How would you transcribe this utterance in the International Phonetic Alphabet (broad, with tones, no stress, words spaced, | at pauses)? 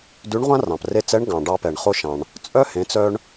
dʉ˧˥ɳʁʷã˥rɑ̃˩p re˧t͡sɛ˧˥ɳ ɡɑ̃˩ɖɑ˧pɛ˩ɳ χo˧ʃɑ̃˩ɳ | t͡sʼœ˥hẽ˩˧t͡sœ˧ɳ